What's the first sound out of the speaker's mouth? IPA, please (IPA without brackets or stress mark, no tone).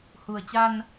h